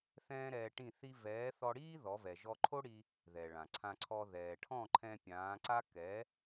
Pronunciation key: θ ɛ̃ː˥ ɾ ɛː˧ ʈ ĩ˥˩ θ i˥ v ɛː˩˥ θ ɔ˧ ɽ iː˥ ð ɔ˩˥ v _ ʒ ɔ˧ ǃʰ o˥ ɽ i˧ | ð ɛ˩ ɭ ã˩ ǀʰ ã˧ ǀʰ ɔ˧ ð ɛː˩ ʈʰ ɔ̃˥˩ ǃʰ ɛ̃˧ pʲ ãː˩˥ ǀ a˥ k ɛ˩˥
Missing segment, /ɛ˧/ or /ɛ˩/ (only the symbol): ɛ˩